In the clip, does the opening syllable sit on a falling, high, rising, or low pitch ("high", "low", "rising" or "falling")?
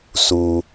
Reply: low